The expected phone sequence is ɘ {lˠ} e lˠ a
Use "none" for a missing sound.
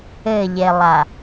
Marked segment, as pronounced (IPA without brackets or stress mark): ʎ